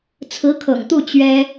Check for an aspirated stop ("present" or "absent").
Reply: present